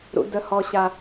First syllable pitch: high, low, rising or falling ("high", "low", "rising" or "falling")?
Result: low